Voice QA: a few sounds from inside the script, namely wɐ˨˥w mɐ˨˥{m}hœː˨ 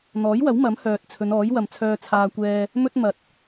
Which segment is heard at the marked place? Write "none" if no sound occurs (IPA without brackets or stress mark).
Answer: m